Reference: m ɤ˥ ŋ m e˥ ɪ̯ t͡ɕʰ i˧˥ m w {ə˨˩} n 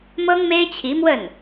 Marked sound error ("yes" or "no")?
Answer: yes